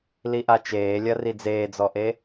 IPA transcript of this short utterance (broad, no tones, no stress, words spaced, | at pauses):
liʔat͡ʃeːlʲɐ rid͡zeːd͡zɔʔe